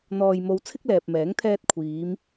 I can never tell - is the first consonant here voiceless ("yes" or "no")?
no